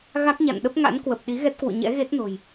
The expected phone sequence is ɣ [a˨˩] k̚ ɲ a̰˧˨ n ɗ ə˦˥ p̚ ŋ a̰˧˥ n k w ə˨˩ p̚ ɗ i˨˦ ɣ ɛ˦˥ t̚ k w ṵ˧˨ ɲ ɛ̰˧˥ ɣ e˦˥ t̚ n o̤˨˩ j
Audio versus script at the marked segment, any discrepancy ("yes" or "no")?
yes